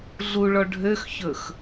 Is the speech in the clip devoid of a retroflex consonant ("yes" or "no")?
no